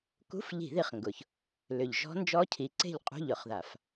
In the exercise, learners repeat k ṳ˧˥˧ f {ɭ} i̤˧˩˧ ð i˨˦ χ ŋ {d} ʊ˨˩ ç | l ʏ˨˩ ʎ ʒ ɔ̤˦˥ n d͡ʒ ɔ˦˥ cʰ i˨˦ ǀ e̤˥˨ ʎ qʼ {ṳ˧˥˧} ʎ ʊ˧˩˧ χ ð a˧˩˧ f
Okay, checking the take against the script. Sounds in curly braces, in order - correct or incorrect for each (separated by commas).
incorrect, incorrect, correct